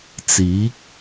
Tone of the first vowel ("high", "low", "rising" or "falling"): rising